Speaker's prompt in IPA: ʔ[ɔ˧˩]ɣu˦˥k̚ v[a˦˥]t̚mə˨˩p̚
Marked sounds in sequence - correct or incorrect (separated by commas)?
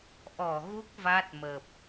correct, correct